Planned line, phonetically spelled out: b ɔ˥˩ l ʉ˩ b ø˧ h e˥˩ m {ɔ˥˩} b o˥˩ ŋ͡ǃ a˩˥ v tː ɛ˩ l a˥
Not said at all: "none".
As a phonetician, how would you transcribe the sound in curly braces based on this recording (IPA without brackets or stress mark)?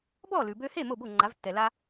o˥˩